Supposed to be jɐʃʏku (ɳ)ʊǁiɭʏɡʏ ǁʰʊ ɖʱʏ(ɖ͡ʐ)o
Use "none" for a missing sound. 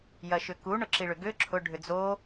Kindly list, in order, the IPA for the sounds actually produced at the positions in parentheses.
ɳ, d͡z

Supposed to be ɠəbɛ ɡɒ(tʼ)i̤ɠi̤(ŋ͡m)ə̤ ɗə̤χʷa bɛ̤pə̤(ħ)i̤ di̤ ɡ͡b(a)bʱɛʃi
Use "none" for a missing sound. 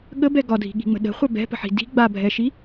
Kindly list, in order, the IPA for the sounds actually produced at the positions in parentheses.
dʱ, ŋ͡m, ħ, a

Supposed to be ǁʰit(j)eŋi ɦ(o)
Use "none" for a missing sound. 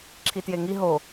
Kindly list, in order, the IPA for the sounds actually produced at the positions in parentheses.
j, o

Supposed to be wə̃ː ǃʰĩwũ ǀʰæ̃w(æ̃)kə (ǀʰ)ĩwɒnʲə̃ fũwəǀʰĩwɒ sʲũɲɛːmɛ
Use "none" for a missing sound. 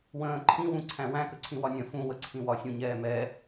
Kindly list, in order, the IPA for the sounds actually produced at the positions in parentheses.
æ̃, ǀʰ

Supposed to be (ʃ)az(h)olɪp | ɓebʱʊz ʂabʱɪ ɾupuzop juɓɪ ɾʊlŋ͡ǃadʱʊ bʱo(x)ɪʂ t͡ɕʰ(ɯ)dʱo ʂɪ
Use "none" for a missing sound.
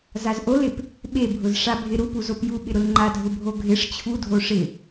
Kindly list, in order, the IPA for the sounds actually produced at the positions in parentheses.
z, ʔ, ɡʱ, u

